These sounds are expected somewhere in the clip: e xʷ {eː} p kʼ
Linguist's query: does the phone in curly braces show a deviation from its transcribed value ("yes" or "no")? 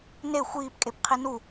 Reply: yes